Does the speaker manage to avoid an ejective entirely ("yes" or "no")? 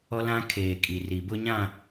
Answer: no